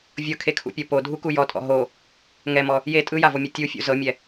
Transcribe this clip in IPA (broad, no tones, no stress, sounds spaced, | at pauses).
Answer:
vʲ ɤ kʰ e kʰ ṵ pʲ ɤ p o dʱ u k u j ɔ tʼ ɔ̰ ɦ o | ŋ ɛ m ɔ | j e tʼ ɯ j a v o mʲ ɛ tʲ u fʲ ṵ z ɤ mʲ ɛ